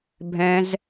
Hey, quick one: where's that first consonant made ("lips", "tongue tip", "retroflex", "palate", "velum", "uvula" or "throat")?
lips